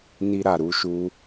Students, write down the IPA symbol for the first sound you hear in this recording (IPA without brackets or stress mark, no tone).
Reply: n